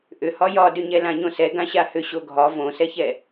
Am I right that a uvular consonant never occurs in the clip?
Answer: yes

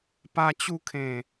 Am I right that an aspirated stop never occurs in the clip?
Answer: no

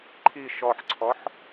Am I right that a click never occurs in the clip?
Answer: no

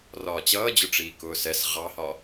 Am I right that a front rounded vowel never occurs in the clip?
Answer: yes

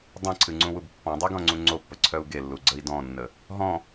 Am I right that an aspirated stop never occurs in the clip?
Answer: no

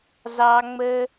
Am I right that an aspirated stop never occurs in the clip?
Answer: yes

